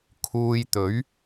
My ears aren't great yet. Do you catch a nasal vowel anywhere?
no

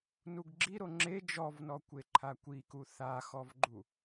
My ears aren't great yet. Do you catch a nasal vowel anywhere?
no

